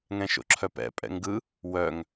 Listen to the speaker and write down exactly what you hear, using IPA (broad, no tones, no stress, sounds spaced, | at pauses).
ŋ ɛ̃ ʃ o̰ ǁʰ œ p ɛ̰ pʼ ɛ̰ ŋ ɡ ɯ | w œ ŋ